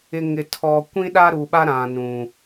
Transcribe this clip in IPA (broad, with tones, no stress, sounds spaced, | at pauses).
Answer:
ɪ˨ ŋ ɪ˨ tʰ ɔ˨ kʷ ĩ˦ ɗ a˦ ɾ u˨ ɓ a˦ ɾ ã˨ n ũ˨